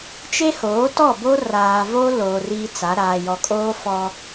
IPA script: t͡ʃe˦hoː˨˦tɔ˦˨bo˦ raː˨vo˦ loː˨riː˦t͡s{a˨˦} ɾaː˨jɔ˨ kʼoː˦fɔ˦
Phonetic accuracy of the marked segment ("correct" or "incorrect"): correct